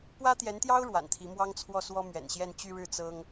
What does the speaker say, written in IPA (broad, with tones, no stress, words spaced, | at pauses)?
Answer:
pwä˥t̪jɛ˧˥nt̪jɑ˥ʊ̯ ɻwa̰˨˩nt̪ʰi˧˥ mwɑ˥ŋt͡sʰwɔ˥˩ swɔ˥mɥɛ̰˨˩nɕjɛ˥˧n t͡ɕy˥˧ɻɻ̩˥˩ t͡sɤ˥ŋ